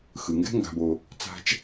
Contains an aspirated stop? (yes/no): no